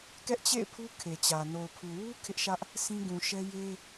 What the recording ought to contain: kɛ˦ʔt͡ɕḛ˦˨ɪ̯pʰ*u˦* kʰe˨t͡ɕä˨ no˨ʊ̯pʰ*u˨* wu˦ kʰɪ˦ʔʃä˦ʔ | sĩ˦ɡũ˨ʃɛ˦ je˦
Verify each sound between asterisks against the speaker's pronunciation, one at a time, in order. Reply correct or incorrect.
correct, correct

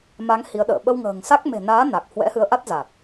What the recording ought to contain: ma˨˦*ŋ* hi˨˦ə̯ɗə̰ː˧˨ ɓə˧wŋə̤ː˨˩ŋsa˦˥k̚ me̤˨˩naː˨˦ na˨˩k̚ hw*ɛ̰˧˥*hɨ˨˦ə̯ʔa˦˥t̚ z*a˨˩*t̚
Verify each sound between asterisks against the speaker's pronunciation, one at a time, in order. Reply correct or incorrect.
correct, correct, correct

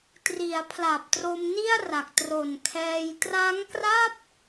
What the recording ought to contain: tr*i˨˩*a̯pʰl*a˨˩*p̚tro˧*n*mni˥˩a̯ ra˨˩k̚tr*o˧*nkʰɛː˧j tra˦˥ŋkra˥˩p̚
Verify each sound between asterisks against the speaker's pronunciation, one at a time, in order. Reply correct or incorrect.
incorrect, correct, incorrect, incorrect

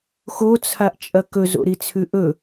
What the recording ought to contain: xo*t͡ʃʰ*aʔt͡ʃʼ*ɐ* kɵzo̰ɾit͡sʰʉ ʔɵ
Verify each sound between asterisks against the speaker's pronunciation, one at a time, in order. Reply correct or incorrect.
incorrect, correct

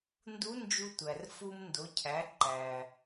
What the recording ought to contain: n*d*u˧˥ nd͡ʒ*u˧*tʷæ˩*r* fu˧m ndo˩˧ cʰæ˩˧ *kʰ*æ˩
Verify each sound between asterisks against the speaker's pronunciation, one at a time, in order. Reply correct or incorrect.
correct, correct, correct, incorrect

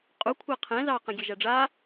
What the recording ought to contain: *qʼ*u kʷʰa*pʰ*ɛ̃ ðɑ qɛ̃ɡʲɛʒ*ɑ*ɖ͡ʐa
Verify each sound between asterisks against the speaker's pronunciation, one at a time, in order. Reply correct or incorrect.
correct, incorrect, incorrect

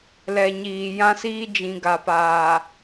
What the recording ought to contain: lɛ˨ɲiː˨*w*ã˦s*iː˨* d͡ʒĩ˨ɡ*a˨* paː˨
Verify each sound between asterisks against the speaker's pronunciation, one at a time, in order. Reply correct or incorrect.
incorrect, incorrect, correct

